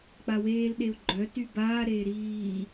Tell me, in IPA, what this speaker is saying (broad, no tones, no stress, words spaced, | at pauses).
k͡paweːl ɗeu̯ɡ͡ǃœ tybaː ɾeːɾiː